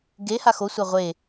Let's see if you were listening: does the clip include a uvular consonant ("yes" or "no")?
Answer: yes